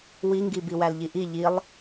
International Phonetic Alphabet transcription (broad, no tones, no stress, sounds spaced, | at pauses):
w i ŋ ɡ i b i w æ l ʎ i ʔ i ʎ i lˠ